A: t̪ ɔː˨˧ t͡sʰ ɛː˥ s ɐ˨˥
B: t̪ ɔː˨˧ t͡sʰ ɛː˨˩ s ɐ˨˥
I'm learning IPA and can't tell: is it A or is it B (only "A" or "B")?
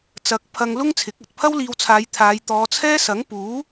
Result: A